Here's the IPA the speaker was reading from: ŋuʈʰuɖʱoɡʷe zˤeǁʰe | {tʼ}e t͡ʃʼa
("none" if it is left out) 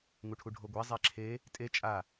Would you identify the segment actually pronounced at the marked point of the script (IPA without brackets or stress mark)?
tʼ